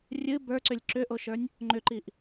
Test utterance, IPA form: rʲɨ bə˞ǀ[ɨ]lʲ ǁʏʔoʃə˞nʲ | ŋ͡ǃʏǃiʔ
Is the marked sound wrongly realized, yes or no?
yes